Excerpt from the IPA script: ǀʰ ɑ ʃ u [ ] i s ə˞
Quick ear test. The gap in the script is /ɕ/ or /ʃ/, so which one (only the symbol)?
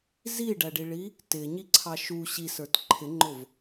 ɕ